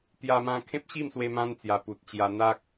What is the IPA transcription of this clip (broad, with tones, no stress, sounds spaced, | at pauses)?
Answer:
t̪ j a˧ m ã˧ kʰ ẽ˦ p̚ ɕ i˥˧ m s w e˧ m ã˦ n t͡s j a˨˩ p u˨ t̚ t͡ɕ j a˧ n̪ a˦ k̚